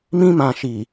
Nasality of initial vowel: nasal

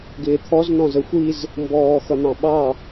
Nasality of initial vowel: oral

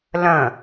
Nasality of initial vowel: nasal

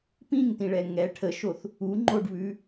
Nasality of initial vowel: nasal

